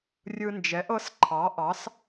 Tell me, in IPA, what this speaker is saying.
rʲ ɯ˧ n d͡ʒ ɛ˩˥ ʔ ɤ˧˥ s ǃʰ ɑ˩˥ ʔ ɑ˩˥ s

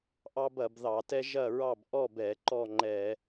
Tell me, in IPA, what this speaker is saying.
ʔ ɑ˦ b ɐ˧˩˧ b ð ɑ˧˩˧ t ɛ˦ ʒ ɐ˥˨ ɹ ɑ˥˨ b ʔ ɔ˥˨ b ɛ˧˩˧ ǃ ɔ˥˨ ŋ͡ǃ ɛ˧˩˧

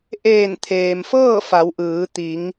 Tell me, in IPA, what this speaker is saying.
ʔ eː˧˩ n t̪ʰ eː˩ m f ɤː˥˨ f a˩˧ w ʔ ɯː˩˧ t̪ i˩˧ ŋ

